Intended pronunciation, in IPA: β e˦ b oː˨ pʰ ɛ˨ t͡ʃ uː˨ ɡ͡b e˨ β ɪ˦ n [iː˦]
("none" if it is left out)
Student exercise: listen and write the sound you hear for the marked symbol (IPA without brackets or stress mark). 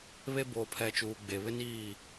iː˦˨